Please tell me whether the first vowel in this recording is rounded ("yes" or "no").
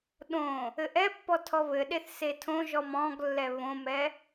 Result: yes